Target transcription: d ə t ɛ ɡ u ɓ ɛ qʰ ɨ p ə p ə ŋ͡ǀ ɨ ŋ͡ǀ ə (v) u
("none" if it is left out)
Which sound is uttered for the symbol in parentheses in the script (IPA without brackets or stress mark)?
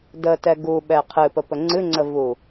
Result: v